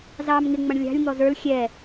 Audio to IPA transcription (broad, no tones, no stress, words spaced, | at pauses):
zɑːmŋɪŋ͡mʌɳ lʲɑ̤lʲ ŋɔzə˞l xʲɛ